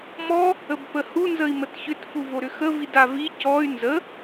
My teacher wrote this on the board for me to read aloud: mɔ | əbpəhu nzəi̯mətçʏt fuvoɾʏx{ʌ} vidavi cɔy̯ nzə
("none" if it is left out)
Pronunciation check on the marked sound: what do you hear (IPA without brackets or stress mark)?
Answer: ə